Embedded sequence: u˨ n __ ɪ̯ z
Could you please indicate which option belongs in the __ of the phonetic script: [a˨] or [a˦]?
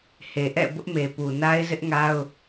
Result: a˦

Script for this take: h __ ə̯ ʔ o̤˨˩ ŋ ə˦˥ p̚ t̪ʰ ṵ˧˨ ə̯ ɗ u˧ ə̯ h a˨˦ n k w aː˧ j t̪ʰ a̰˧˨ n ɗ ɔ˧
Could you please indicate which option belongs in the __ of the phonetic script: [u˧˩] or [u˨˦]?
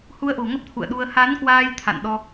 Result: u˨˦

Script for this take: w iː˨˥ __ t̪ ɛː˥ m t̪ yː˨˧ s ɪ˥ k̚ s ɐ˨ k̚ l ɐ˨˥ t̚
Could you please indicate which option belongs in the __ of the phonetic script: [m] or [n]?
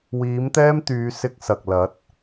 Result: m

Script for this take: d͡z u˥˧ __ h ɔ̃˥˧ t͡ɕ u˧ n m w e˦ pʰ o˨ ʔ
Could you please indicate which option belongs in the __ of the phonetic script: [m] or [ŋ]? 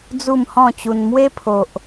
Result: m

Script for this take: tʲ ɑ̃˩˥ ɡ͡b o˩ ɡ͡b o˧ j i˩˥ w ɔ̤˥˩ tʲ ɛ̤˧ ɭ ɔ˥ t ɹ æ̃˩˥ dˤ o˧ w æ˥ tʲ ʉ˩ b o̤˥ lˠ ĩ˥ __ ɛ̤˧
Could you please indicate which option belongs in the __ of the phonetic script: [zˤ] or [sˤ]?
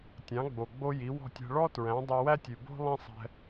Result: sˤ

